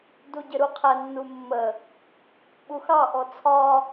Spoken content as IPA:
d u ɟ ɪ ɾ u qʰ ɛ nː u mː ə | ɓ u x ɑ ʔ ɔ t͡sʰ ɒ

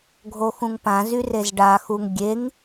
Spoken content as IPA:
ɡʱ o x ũ ŋ p ã z y r e z ɖ a x u ŋ ɡʲ e ŋ

